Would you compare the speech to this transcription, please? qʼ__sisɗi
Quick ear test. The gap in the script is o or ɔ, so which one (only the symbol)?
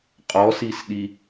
ɔ